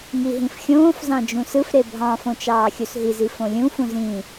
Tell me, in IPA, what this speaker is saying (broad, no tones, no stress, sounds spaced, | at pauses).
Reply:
ŋ i ɦ ĩ f xʲ õː f z ɑ̃ d͡ʒ ũ s ɯ f ɾ e bʱ ɑ̃ f õ t͡ʃ ɑː xʲ u s ɦ i z i f õ lʲ ũ f ũ z ĩ